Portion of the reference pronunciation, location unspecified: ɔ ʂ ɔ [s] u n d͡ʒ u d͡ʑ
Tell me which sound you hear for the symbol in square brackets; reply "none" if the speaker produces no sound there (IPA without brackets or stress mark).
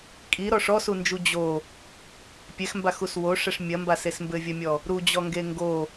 s